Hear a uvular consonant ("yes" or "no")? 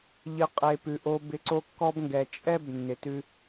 yes